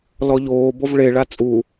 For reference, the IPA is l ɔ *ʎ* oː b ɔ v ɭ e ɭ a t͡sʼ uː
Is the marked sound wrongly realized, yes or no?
no